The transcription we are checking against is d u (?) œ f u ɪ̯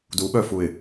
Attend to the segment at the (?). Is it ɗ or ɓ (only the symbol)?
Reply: ɓ